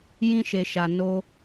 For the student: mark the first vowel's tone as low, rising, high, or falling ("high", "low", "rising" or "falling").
high